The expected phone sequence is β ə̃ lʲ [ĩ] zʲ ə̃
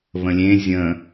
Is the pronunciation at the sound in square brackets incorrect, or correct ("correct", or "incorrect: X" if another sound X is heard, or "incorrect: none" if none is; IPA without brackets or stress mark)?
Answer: incorrect: ẽ